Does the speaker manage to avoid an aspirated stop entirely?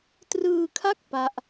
no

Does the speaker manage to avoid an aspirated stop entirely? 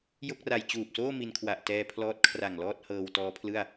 no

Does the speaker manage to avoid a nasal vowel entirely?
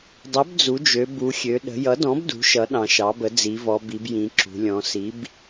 no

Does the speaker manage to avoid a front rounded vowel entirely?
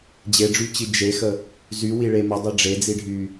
no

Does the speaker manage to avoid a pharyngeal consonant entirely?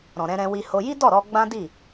yes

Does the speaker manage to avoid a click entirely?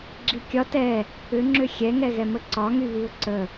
no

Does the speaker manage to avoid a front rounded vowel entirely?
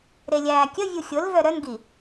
no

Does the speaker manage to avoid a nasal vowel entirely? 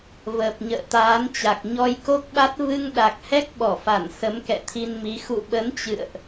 yes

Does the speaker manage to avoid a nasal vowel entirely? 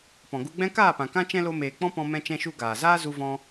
no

